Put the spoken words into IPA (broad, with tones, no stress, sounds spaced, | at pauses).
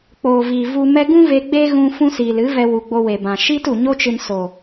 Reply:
k͡p oː˨ v iː˨ v u˧ m ɛ˦ ɡ ũ˦ v e˧ ɡ͡b e˦ ɣ ũ˧ f ũ˦ s iː˨ l ɨ˨˦ v ɛ˧ w u˨ ɡ͡b o˧ w e˨ b ã˨ ʃ i˦ t u˨ ɲ o˦ t͡ʃ ɨ˧ n s o˨